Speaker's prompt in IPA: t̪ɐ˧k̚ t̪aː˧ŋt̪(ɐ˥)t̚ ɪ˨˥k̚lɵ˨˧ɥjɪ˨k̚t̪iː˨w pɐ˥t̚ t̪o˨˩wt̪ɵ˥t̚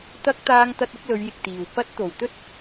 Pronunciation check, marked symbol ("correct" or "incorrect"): incorrect